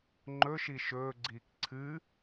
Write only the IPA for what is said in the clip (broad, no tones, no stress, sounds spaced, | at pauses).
ŋ͡ǃ ɵ ʃ i ʃ ɵː ɡ͡ǀ iː k ǀʰ ɨː